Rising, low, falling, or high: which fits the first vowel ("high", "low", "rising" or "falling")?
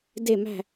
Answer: falling